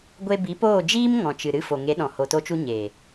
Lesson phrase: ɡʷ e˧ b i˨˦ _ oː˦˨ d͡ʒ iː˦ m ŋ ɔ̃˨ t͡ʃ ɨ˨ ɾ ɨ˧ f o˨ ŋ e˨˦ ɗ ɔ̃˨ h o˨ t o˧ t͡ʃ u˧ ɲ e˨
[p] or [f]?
p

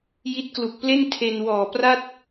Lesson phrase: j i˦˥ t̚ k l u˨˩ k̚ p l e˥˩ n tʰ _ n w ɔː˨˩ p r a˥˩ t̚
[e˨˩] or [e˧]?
e˧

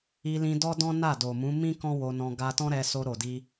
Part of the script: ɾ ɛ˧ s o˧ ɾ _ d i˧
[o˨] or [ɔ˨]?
o˨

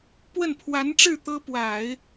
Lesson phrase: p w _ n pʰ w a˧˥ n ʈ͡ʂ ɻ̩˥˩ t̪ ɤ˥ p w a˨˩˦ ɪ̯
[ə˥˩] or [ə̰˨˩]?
ə˥˩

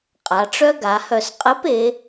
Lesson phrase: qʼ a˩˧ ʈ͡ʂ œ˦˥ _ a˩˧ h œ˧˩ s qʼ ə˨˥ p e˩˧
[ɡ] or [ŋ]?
ɡ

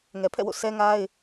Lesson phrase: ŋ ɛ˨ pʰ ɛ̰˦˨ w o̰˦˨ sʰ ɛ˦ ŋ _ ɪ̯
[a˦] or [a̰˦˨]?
a˦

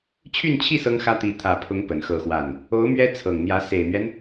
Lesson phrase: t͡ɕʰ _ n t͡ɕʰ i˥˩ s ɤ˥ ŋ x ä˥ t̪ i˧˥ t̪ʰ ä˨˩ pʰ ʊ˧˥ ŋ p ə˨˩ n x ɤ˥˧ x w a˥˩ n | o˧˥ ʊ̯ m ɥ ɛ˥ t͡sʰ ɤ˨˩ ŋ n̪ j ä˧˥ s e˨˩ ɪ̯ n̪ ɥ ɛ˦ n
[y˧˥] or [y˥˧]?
y˥˧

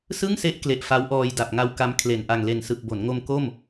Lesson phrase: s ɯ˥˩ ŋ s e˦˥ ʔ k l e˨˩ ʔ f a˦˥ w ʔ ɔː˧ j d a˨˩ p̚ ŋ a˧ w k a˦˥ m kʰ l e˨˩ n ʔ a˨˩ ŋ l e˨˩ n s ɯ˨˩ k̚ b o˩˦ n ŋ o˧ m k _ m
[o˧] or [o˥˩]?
o˥˩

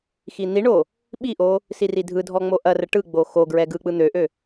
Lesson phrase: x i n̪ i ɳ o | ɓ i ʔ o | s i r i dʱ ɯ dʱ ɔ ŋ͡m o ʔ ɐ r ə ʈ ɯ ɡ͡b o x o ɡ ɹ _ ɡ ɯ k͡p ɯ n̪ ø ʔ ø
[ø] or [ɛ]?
ɛ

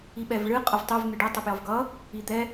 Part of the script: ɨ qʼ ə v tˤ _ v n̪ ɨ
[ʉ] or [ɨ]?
ʉ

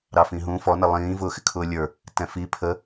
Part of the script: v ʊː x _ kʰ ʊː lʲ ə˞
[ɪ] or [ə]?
ɪ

